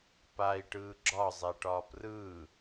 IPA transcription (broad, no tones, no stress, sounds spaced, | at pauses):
p a i̯ ʈ ɯː ɡ͡ǁ ɒ zˤ ɛ ʈ ɒː p r ɯː